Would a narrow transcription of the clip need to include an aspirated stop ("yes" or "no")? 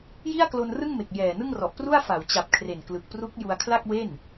yes